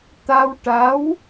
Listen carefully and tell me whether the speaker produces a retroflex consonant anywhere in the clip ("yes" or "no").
yes